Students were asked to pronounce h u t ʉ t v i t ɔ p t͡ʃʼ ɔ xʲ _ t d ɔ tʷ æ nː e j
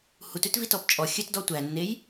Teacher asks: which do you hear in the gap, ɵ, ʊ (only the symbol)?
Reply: ɵ